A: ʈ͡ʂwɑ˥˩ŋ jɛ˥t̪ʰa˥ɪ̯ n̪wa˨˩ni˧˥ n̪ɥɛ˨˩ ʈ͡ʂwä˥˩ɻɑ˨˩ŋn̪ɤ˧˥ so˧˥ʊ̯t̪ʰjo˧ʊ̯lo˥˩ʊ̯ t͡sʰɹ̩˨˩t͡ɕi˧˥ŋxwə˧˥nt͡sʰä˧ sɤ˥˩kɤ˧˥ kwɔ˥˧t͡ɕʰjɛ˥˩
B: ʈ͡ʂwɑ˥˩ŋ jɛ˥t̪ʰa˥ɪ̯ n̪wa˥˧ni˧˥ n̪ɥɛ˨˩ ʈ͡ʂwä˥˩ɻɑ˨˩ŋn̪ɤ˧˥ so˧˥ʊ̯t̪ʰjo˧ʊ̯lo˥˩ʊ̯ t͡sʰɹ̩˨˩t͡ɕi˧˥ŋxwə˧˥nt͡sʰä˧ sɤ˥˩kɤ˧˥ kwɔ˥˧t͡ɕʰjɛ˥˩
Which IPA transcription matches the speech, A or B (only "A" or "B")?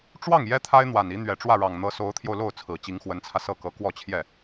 A